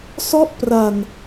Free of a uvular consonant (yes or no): yes